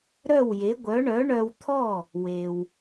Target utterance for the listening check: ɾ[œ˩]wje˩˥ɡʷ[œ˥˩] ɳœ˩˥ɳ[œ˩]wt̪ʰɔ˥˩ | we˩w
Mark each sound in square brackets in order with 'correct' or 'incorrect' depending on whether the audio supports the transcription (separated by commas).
incorrect, incorrect, incorrect